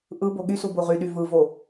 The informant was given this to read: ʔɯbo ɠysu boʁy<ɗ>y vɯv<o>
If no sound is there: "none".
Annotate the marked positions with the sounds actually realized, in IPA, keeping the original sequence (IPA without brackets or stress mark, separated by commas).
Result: ɗ, o